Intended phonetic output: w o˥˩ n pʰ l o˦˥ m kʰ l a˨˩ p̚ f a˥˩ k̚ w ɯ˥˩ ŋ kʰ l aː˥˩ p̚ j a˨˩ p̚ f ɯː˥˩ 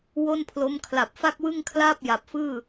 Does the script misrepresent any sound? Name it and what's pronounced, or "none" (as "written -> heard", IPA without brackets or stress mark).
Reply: none